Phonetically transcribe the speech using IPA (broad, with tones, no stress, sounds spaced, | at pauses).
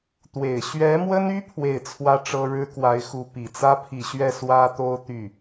t̪ w e˨˩ ɪ̯ ɕ ɥ ɛ˧˥ m w ə˥ n y˥ pʰ w e˥˩ ɪ̯ t͡sʰ w ä˥ ʈ͡ʂ ɤ˥ ɻ ɻ̩˥ k w a˧˥ ɪ̯ x u˧˥ p i˨˩ t͡s ä˥ pʰ i˨˩ ɕ ɥ ɛ˥˩ s w ä˥ t̪ o˥ ʊ̯ t̪ y˥˩